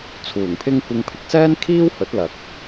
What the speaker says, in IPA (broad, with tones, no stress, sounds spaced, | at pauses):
t͡sʰ uː˨˩ ŋ pʰ ɪ˥ ŋ kʷ ɪ˧ ŋ pʰ ɪ˨˥ k̚ s ɛː˥ n kʰ iː˥ w h ɵ˨˥ t̚ l ɐ˨˥ k̚